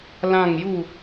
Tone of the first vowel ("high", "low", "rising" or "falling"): falling